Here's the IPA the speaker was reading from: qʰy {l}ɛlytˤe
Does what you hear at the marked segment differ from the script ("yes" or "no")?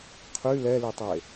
no